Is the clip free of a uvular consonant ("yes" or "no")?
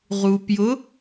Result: no